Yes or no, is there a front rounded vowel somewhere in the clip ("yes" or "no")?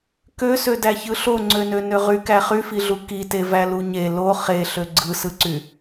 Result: yes